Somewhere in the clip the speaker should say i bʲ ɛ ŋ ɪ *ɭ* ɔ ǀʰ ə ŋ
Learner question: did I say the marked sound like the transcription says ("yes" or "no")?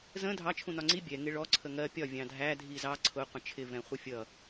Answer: yes